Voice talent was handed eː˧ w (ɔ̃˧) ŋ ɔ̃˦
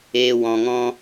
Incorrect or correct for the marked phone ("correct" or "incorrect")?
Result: correct